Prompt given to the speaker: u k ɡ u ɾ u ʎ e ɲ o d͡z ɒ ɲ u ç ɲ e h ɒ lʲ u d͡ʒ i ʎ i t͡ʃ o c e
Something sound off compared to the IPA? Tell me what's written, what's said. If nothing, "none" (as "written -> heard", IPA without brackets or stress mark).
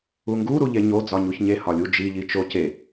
k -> ŋ